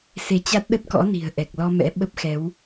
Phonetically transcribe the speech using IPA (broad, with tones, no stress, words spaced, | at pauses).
se˨˦t͡ɕa˦˥t̚ ɗə˦˥t̚kɔ̰˧˥ ni̤˨˩ə̯ ʔɛ˨˩k̚lɔ˧mɛ̰˧˥ ɓə˦˥p̚xɛ˨˦w